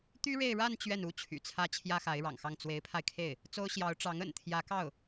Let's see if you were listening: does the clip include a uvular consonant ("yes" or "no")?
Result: no